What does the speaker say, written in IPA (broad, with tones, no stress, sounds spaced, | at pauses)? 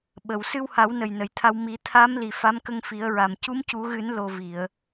ɓ ə˨˩˨ w s ɨ˧ w h a˨˩˦ w n ə˨˩ j n ə˨˩˨ j t̪ʰ a˧ w m i˨˩˦ t̪ʰ a˧˥ m l i˨˩ f a˧˥ m k ə˧ ŋ f i˨˩˦ ə̯ ɹ a˨˩ m c u˧˥ m c u˨˩˦ ɣ ɨ˨˩˦ n l o˨˩ v i˨˩˨ ə̯